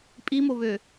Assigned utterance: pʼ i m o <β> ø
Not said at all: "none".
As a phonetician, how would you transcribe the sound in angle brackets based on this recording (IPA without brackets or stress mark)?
β